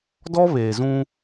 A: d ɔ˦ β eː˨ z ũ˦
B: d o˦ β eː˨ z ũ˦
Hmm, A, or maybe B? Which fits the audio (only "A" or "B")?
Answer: A